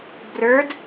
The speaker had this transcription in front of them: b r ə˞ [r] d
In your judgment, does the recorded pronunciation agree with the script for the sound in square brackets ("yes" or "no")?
no